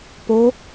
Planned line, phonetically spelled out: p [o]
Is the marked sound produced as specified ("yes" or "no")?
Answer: yes